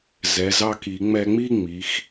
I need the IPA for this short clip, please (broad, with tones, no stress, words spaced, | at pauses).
zɛ˩˧ zɑ˧ki˩˧ ŋ͡mɛ˧ŋ͡mi˥˧ ŋ͡mi˩˧x